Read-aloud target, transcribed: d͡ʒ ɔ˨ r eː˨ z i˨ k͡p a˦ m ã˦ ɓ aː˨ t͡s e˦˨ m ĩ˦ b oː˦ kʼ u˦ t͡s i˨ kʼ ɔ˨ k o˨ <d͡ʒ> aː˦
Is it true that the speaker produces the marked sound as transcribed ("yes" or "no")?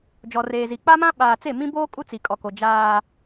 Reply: yes